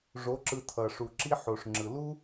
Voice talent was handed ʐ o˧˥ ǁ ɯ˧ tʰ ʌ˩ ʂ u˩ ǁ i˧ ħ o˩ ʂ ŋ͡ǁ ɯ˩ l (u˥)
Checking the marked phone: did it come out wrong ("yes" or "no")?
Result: no